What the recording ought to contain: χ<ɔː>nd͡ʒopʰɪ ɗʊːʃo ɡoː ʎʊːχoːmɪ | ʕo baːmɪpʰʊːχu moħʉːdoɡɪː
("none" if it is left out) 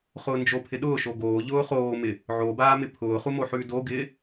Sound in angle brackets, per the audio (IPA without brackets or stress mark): ʊː